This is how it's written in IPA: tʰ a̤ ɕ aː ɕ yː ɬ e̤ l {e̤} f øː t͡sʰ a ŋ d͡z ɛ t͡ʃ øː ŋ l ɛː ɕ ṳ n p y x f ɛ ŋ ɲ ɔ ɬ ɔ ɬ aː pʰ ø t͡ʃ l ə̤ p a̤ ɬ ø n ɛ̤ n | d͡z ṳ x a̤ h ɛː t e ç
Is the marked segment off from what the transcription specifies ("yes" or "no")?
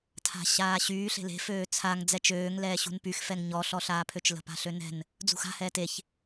no